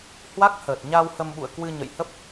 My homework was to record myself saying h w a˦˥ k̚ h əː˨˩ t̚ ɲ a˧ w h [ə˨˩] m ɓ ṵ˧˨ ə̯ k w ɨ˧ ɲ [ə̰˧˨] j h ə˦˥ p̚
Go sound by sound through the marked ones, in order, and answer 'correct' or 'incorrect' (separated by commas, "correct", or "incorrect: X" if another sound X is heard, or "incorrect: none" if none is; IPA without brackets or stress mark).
incorrect: ə˧, correct